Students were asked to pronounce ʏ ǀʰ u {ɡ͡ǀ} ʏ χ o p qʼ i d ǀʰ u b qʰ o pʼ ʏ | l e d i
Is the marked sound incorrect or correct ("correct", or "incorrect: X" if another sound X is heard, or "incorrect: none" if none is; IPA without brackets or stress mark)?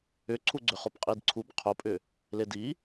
correct